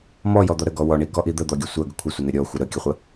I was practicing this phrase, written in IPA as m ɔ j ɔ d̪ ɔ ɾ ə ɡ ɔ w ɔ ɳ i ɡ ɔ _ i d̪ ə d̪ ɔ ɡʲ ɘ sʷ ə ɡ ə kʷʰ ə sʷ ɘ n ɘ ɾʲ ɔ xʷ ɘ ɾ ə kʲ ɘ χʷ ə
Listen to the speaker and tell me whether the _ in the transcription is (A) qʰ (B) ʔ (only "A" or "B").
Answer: B